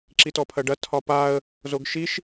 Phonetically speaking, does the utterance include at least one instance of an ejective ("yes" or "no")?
no